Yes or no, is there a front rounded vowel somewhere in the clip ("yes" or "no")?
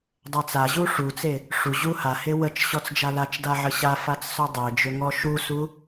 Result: yes